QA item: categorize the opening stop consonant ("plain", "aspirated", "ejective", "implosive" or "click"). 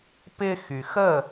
plain